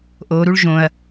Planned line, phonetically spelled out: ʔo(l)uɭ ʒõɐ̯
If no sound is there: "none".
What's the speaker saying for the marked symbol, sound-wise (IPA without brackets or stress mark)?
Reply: ɾ